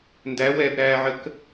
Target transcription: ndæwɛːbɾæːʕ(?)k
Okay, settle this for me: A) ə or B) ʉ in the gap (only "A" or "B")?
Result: A